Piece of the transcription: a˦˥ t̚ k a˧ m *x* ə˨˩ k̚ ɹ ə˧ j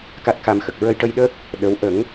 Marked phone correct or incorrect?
correct